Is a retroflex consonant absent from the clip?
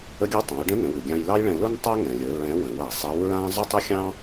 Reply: no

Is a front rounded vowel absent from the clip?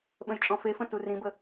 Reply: yes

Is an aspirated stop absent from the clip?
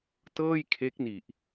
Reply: no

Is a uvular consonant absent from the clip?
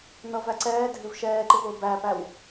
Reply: yes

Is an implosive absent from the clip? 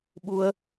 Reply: no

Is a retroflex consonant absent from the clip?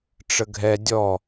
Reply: no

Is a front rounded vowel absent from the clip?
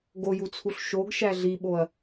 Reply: yes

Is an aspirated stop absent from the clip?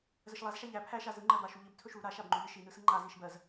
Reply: no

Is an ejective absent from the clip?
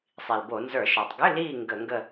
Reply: yes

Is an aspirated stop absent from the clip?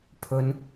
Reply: no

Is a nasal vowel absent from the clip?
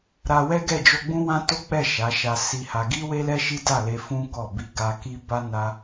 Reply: no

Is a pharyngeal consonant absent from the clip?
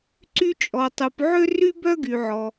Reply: no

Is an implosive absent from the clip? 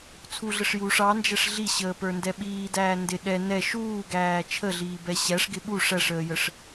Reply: no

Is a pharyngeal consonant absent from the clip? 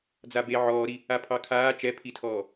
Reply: no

